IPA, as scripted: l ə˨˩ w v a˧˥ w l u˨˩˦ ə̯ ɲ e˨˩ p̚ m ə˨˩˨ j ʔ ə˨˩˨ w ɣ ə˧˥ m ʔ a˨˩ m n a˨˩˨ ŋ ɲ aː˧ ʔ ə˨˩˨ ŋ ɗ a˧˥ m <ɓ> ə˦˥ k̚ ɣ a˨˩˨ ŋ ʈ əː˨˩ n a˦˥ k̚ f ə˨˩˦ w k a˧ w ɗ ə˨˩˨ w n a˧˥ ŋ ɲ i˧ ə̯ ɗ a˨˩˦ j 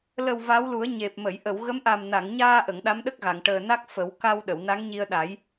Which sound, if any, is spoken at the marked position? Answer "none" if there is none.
ɗ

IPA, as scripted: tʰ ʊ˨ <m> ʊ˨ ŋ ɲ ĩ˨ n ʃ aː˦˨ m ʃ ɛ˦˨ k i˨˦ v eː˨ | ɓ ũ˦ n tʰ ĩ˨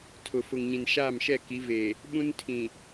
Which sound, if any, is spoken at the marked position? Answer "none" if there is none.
f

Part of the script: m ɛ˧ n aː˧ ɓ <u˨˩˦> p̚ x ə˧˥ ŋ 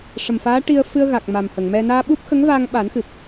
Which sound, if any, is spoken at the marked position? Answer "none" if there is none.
u˦˥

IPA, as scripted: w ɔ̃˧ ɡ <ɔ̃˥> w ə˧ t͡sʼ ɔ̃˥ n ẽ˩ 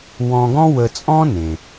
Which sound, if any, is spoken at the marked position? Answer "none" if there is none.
ɔ̃˥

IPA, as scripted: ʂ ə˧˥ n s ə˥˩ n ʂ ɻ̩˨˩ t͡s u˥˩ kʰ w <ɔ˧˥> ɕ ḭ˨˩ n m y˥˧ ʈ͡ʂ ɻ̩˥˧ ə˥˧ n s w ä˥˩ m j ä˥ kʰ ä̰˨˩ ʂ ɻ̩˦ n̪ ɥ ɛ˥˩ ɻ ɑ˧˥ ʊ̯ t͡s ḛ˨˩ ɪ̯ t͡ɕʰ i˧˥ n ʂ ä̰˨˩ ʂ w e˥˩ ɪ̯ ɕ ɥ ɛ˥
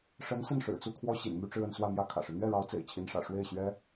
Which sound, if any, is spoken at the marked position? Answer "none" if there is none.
ɔ˥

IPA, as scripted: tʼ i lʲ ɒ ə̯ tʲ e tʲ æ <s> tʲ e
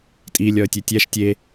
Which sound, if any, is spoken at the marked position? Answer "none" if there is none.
ʃ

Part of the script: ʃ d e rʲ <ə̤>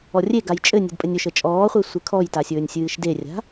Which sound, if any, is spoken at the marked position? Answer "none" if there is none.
a̤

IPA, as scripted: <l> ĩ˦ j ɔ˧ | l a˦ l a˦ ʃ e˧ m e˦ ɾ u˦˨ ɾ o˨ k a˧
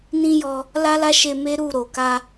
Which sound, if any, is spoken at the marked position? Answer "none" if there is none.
n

